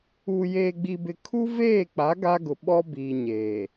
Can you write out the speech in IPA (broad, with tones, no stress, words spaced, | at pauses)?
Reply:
uː˨jeː˨ɡ͡bi˨bɪ˨ kʰu˦veː˦˨k͡pa˨˦ ɡa˦ɡʊ˨ ɓɔ˦biː˨ ɲeː˨